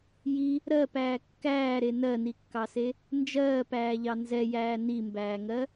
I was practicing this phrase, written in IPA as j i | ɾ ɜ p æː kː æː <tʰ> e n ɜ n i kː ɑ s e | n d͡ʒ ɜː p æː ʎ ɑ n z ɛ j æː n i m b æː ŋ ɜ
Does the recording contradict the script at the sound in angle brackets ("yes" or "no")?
yes